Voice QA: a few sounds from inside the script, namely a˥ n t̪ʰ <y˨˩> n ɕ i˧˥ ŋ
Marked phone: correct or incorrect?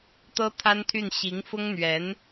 incorrect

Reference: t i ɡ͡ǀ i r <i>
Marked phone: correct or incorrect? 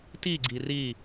correct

